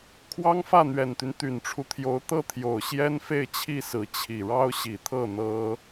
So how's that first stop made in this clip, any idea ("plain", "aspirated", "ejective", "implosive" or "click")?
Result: aspirated